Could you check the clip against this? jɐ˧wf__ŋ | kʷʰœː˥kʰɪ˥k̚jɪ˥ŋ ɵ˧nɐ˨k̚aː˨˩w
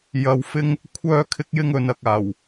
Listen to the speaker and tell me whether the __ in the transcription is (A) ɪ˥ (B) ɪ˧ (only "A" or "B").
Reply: A